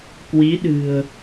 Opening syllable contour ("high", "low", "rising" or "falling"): rising